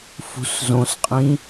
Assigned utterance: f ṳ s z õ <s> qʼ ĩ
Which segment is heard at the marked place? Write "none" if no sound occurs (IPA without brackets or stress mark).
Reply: s